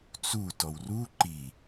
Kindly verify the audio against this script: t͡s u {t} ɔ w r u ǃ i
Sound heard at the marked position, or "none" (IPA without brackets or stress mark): t